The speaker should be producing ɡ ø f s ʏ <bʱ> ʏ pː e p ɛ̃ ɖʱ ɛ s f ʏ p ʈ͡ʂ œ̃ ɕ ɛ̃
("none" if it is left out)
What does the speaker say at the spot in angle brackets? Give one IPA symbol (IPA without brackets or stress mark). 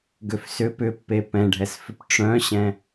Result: p